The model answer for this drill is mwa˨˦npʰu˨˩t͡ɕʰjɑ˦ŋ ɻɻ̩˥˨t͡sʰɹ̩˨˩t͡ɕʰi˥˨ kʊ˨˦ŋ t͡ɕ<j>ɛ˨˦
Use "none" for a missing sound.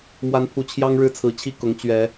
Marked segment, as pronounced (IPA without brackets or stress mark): ɥ